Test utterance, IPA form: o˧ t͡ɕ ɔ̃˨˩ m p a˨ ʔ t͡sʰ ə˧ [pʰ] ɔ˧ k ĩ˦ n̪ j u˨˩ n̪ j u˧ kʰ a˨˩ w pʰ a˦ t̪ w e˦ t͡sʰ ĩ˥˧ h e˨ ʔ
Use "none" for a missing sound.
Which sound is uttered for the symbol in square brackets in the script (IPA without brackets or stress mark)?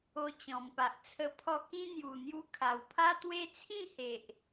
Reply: pʰ